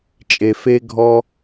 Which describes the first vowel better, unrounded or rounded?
unrounded